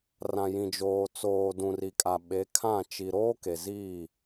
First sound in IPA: r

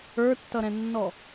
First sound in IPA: ə˞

